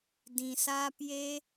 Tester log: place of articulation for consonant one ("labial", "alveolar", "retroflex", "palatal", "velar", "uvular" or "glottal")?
alveolar